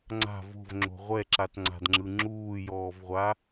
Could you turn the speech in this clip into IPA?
ŋ͡ǀ a̤ v o̤ v ŋ͡ǁ o̤ ʁʷ ɛ ǁ a t ŋ͡ǀ a̤ d ŋ͡ǁ ɯ ŋ͡ǁ uː j ɔː v ʁʷ a

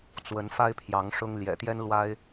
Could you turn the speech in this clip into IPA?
t͡s w ə˨˦ n f a˦ ɪ̯ pʰ j ɑ˨˦ ŋ ʂ ʊ˦ ŋ l j ɛ̰˨˩ t̪ j ɛ˦ n l w a˦ ɪ̯

